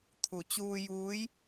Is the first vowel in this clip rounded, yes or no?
yes